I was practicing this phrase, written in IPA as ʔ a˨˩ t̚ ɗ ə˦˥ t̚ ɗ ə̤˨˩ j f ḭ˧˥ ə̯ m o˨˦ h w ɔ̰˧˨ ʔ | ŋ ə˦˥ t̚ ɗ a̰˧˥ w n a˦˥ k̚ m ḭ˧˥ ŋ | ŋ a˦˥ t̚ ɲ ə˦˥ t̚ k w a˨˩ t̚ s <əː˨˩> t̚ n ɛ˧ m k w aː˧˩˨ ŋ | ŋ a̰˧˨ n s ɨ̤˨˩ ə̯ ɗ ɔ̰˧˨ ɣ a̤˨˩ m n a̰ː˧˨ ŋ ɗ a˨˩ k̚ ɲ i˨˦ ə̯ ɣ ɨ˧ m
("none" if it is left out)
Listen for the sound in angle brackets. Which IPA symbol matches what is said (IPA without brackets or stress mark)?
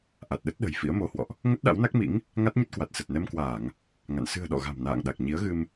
ə˨˩